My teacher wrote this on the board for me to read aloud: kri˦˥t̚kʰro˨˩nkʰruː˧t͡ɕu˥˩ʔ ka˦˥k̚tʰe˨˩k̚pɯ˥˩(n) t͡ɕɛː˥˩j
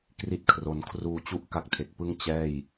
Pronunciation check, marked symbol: incorrect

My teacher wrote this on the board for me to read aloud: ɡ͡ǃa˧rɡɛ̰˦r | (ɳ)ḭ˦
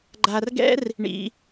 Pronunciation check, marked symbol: correct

